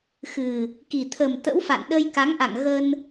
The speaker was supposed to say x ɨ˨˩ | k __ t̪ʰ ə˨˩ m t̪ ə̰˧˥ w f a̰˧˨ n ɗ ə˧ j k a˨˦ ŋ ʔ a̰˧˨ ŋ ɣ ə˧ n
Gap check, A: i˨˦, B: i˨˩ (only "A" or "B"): B